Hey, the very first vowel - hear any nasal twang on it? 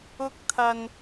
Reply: no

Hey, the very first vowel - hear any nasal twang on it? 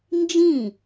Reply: yes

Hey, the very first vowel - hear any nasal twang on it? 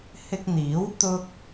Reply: no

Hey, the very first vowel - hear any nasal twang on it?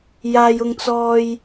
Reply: no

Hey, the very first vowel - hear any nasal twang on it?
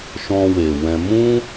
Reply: yes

